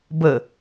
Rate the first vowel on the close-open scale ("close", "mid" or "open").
mid